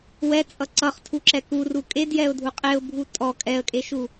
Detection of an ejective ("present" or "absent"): present